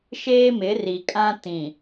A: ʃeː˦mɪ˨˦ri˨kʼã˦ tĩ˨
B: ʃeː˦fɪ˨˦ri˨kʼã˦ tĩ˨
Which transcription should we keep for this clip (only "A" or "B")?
A